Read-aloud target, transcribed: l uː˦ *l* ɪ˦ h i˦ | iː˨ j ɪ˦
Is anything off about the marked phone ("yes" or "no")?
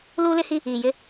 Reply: no